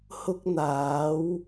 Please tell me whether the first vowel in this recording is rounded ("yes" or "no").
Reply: yes